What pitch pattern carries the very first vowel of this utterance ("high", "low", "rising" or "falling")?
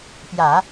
low